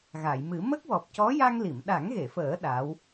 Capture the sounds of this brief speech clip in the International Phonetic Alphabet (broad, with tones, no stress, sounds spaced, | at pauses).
ɣ a˨˩˨ j m ɨ˨˩˦ m ə˦˥ k̚ w ɔ˨˩ p̚ c ɔ˧˥ j a˧ ŋ l i˨˩˨ m ɗ a˨˩˦ ŋ ɣ e˨˩˨ f əː˨˩˦ ɗ a˧˥ w